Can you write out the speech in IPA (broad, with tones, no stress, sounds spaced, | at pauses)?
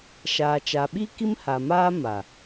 ʃ aː˨ t͡ʃ a˨ ɓ i˦ k i˦ m h a˨ m aː˦ m a˨